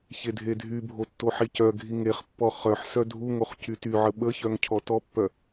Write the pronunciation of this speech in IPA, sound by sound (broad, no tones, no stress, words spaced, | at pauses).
çedʱedʱybʱo tːoħicœɡʱi ŋeχpːɔ χœħ sœdʱuŋoχ cytyʕə ɓəçœŋ cʰɔtɔpːœ